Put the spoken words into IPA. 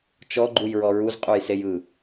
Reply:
t͡ʃ ɔ ɡ͡ǃ u j ɹ ɔ ɹ u z qʼ u j s e j ɯ

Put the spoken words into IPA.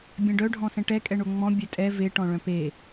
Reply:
bʲ ɛ̃ ɖ œ ɖʱ ɔ̃ s ɛ̃ ʈ ɛ kʼ ɛ ɳ o ŋ͡m ɔ̃ bʲ œ tʼ ɛ v e ʈ ɔ̃ ɭ œ̃ p e

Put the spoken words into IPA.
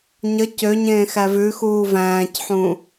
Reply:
ɲ ə c ø ɲ ẽː x æ v ʉ x uː v æ̃ː c ħ ũ

